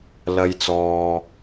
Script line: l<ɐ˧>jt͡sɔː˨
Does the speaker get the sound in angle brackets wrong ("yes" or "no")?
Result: no